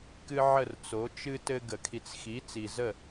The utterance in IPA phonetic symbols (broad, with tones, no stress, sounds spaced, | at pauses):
k ɨ˦ ʕ ə˥˩ r t͡s o˩˥ t͡ʃ ɨ˦ t ɘ˦ ɡ ə˨˩˦ kʰ i˨ t͡s x i˩˥ t͡s i˨ z ə˥˩